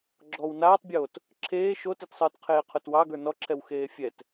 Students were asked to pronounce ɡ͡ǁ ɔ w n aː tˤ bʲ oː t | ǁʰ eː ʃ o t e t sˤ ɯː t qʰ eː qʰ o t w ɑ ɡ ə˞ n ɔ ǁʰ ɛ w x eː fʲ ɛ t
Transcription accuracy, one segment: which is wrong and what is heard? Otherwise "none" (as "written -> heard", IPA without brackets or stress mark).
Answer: none